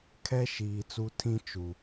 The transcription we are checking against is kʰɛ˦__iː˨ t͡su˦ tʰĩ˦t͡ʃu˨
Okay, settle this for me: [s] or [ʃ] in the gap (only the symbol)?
ʃ